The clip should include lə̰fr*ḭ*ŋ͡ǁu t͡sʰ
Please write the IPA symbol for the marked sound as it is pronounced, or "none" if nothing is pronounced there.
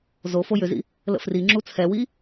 i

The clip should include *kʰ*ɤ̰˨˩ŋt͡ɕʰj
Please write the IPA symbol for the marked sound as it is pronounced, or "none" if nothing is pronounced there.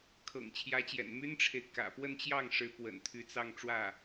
kʰ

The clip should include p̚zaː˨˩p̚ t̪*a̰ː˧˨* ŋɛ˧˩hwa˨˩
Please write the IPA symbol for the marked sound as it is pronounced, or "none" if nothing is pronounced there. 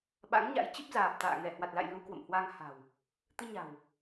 a̰ː˧˨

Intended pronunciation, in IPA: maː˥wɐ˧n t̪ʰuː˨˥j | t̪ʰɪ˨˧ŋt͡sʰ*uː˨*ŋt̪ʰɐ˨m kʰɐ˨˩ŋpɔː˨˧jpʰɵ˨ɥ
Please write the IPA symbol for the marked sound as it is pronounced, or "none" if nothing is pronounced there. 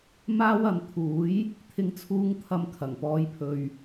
uː˨˧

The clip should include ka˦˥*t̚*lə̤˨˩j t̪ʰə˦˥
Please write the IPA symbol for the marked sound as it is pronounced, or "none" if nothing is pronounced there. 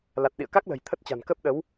k̚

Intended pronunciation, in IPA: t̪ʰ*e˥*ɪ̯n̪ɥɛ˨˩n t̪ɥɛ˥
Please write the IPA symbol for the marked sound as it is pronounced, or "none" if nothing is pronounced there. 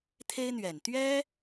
e˥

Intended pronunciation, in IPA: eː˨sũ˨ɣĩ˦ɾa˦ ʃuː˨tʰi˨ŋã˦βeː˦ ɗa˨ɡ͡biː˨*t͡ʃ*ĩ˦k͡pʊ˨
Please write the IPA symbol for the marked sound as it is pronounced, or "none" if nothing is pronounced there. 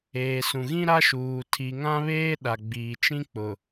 t͡ʃ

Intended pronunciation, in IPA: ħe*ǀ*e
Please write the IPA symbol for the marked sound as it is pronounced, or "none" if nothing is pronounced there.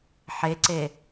ǀ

